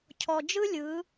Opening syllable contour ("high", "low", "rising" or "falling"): low